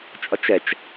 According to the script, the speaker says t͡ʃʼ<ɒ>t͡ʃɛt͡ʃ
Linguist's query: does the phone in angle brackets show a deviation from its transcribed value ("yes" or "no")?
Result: no